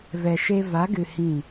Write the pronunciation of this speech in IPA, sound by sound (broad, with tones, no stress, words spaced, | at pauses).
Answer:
vɛ˨ʃe˧ va˨˦ɡɨ˨ hĩ˦˨